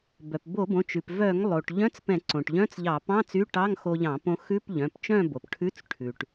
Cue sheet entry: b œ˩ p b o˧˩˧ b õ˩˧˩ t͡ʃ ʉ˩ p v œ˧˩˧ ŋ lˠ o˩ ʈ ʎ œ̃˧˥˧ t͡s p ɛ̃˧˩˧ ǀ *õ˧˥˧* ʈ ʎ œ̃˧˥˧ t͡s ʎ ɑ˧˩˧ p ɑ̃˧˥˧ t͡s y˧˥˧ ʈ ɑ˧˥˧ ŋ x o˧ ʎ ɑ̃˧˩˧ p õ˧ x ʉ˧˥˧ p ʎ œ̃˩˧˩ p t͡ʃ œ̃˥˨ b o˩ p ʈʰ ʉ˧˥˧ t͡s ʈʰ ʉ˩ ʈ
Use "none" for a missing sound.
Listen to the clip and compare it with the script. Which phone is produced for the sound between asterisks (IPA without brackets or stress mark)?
õ˩